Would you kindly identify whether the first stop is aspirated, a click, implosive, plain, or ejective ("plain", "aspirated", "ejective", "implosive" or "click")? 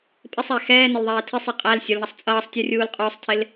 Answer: ejective